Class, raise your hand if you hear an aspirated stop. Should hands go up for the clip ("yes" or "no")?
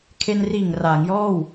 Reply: yes